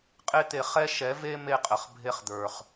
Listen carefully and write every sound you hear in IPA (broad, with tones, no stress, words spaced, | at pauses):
qʼe˦t̪e˧ χɛ˦ ʃɛ˨˦ve˦ me˦qʼə˨χ bʱe˦χd̪ə˞˨χ